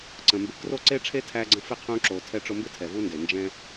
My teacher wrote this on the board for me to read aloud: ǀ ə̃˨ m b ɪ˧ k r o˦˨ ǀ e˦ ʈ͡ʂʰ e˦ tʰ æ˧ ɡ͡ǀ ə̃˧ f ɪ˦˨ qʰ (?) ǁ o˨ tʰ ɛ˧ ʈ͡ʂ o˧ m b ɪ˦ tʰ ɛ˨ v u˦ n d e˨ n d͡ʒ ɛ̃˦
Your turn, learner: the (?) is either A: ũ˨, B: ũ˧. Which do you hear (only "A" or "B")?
B